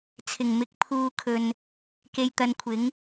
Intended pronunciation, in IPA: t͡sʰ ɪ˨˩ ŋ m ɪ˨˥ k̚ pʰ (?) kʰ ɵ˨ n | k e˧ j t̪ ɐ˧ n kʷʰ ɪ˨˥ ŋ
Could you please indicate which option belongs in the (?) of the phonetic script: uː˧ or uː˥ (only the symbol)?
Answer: uː˧